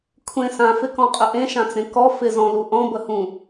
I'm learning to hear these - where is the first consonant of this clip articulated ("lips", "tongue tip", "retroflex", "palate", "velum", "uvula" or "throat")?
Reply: velum